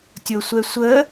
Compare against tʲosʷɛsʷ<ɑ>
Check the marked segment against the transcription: incorrect: ə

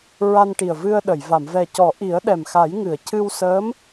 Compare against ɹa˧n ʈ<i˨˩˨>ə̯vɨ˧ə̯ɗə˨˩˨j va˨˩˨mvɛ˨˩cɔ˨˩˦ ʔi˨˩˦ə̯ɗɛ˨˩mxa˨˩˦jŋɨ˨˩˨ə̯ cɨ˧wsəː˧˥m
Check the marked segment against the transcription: incorrect: i˨˩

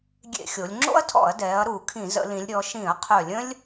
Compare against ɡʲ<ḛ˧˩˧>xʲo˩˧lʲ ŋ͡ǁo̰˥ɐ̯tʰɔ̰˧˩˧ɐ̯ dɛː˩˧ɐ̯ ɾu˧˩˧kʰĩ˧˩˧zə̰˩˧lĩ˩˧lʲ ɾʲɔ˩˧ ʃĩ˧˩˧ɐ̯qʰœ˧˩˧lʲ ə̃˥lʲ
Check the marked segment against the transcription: correct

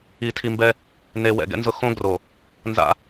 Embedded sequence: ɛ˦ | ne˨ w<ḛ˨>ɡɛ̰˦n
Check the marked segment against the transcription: incorrect: ɛ̰˨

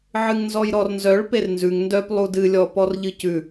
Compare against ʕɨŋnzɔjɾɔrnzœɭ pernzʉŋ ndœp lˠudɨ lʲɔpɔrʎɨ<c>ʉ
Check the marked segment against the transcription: correct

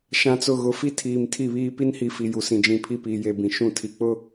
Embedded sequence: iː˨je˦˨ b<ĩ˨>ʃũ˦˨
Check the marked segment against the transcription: correct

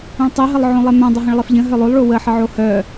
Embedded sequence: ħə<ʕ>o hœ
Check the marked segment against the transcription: correct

